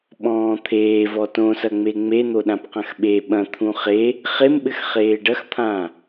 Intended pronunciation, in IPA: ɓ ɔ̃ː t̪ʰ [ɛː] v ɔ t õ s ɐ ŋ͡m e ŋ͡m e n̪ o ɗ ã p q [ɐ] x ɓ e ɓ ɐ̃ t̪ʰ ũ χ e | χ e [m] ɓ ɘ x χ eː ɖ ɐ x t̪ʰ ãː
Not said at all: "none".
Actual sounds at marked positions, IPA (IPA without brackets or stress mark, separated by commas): eː, ɐ̃, m